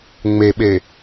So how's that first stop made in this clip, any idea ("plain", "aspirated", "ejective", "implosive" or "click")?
implosive